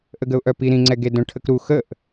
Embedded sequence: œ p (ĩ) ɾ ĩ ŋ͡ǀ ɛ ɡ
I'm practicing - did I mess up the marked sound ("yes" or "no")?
yes